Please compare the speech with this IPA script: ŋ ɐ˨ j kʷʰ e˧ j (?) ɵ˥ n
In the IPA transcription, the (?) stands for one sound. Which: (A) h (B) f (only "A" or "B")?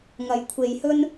A